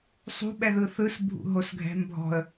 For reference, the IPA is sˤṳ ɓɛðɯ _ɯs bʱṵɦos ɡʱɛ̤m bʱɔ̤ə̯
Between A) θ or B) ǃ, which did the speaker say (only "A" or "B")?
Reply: A